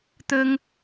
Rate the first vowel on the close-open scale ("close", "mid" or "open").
mid